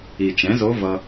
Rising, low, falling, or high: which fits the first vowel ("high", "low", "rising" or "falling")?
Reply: low